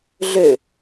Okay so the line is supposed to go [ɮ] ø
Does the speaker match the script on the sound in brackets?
yes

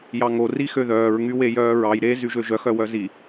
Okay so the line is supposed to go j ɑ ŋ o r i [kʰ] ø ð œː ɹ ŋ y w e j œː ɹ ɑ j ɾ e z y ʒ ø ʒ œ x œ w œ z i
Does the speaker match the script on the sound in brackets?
no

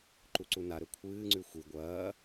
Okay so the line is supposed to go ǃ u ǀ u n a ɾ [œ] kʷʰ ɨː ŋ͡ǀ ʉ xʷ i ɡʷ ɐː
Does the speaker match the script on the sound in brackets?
no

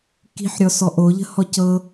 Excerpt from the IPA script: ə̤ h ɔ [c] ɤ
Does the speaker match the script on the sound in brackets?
yes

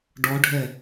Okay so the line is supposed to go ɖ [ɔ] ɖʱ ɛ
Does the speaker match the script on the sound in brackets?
yes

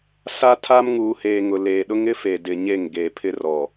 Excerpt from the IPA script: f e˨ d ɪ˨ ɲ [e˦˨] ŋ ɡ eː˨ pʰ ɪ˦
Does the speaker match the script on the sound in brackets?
yes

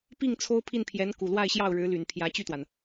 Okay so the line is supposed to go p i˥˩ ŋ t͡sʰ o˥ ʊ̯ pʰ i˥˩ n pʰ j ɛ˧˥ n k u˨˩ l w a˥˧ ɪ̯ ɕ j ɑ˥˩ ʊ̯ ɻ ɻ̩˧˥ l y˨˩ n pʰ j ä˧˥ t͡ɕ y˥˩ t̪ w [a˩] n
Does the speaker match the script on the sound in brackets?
yes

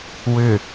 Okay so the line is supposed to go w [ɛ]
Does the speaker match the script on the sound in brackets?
no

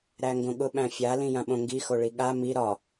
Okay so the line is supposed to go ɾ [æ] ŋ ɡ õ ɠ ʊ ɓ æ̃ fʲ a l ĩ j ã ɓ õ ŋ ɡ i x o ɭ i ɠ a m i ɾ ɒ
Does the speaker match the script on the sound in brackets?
yes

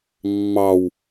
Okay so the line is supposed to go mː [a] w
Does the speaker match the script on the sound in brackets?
no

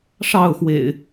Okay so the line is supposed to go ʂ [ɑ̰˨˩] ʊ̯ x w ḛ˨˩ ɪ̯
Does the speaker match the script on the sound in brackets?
no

